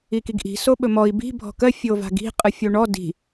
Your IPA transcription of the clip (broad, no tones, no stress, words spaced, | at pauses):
ikiɡʔi̤ soɓɵmɔi̯ bi̤ bʱɔ̤kɜ fʲova̤ɡi̤ qʼɯfʲoɳɔ di̤